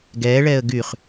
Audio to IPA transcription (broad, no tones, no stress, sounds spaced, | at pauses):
ɡ ɛː ɭ ɛː ə̯ ɡ y χ